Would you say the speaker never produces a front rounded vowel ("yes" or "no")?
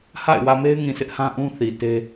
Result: yes